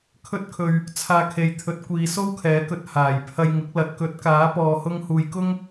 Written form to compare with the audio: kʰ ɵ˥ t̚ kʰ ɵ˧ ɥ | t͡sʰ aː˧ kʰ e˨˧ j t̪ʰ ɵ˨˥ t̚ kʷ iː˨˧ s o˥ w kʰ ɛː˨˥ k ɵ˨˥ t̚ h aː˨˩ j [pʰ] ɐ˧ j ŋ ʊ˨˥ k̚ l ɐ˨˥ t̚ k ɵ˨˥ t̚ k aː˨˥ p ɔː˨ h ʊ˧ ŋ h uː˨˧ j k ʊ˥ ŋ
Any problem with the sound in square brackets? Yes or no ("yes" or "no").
no